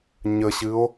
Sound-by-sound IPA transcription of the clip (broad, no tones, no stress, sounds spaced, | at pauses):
ɲ ə ɕ ɨ o̯